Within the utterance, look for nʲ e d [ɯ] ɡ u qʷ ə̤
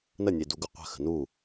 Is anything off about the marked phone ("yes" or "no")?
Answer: yes